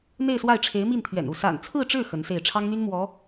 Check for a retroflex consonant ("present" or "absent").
present